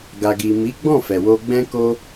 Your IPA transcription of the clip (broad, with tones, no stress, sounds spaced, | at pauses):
ɡ a˨ ɡ i˨ m i˨˦ ɡ͡b ɔ̃˦˨ f ɛ˨ w o˧ ɡ͡b ɛ̃˦ k o˦